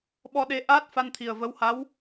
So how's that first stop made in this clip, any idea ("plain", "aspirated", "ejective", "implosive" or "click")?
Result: implosive